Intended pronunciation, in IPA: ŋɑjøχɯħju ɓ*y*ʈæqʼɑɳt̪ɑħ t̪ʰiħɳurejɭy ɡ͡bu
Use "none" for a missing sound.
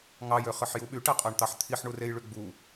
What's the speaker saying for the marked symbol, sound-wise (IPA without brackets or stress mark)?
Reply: y